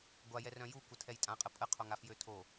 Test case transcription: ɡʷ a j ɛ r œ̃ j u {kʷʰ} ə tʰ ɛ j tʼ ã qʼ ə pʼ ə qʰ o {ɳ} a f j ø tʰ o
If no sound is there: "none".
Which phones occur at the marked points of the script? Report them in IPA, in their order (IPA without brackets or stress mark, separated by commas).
kʷ, ŋ